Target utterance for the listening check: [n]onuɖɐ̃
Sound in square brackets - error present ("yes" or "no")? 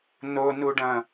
no